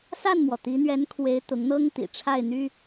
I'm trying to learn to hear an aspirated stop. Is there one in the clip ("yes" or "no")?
yes